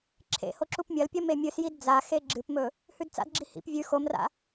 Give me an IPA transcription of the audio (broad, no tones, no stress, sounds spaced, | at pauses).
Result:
ǁʰ ḛ h o ǁ u p mʲ ɐ l pʲ ɐ m e mʲ ɨ s j i d d͡z a x e ɡ͡ǁ ɨ p m ɵ | h ʉ d t͡s a̰ d ɡ͡ǁ i h ḭ p vʲ ʉ x o m r a̰